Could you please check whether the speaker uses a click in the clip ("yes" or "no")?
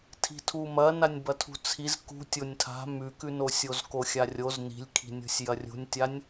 no